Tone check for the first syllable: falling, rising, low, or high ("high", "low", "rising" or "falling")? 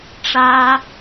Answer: high